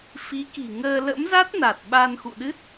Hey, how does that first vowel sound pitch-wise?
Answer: rising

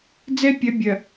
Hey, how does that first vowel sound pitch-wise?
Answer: high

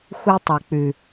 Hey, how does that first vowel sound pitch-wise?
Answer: high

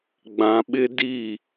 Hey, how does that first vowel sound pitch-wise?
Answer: low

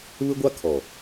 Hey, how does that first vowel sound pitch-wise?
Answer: high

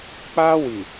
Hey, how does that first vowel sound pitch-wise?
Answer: high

